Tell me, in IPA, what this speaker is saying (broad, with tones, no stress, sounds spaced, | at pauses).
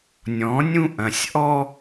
nʲ ɔ̃˨˦ nʲ ũ˦ ʔ ɐ̃˨ sʲ ʔ ɔ˦